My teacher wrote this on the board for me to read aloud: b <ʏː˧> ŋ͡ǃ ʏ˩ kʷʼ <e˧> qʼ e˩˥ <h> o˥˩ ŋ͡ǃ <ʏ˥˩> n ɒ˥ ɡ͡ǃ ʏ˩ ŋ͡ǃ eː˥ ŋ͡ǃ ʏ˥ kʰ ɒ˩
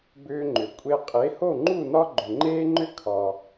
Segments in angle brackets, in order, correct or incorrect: correct, correct, correct, incorrect: u˥˩

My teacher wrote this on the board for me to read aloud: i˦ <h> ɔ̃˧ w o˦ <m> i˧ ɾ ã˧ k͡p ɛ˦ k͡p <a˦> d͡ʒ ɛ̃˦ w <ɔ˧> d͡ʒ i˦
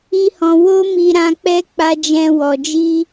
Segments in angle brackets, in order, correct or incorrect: correct, correct, correct, correct

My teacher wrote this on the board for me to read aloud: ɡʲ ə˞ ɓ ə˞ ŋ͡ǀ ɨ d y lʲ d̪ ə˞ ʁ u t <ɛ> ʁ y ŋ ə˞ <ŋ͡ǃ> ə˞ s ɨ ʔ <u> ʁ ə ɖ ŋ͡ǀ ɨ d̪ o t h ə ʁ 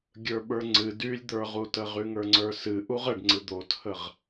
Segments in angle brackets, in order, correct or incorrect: incorrect: ə, incorrect: ŋ͡ǀ, correct

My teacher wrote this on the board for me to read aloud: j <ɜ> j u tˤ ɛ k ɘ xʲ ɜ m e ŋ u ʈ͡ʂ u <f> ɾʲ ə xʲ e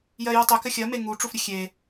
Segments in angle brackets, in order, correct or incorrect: correct, correct

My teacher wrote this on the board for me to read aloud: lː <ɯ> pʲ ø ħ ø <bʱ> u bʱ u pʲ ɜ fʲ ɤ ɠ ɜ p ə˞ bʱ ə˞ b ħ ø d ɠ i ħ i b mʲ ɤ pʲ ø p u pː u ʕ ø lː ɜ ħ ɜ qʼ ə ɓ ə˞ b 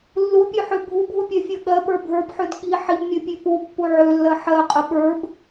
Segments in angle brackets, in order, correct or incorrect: incorrect: u, correct

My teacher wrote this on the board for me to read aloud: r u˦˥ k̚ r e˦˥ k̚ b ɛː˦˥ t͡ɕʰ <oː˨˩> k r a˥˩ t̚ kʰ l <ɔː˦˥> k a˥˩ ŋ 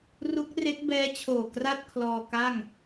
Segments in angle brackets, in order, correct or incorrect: correct, incorrect: ɔː˧

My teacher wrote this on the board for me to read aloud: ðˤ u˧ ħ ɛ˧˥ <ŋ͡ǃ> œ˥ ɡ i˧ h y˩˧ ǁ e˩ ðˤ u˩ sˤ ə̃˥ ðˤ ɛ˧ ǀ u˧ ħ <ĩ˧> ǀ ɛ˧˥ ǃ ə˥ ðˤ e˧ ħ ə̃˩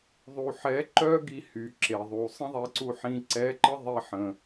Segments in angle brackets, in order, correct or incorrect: incorrect: ǃ, correct

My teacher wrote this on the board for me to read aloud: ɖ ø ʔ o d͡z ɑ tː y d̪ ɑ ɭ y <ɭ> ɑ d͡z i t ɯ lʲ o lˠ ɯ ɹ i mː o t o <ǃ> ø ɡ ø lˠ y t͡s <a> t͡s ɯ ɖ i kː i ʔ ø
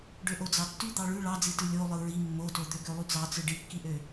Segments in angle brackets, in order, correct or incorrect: correct, incorrect: d̪, incorrect: ɑ

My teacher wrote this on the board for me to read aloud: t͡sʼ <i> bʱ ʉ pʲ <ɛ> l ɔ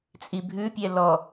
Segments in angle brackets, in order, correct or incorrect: correct, correct

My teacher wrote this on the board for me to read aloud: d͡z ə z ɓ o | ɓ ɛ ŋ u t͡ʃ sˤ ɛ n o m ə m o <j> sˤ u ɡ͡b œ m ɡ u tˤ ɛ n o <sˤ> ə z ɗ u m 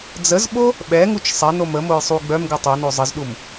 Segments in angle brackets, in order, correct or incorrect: correct, incorrect: zˤ

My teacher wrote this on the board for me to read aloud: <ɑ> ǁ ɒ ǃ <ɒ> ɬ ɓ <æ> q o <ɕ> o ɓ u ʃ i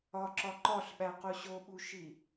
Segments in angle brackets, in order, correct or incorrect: incorrect: ɒ, correct, correct, correct

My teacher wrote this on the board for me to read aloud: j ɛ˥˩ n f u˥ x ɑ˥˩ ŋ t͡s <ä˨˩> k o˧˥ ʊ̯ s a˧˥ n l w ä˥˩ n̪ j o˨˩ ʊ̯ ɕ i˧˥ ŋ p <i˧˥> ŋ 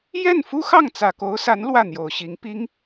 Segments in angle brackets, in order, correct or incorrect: correct, incorrect: i˥

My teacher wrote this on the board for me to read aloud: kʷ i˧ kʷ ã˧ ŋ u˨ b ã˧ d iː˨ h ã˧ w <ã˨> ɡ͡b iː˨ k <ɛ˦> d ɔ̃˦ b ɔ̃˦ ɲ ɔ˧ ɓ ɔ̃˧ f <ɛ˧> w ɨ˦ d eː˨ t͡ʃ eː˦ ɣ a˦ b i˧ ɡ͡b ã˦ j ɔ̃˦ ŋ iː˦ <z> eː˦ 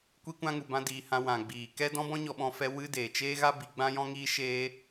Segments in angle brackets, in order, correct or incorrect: correct, correct, correct, incorrect: ʃ

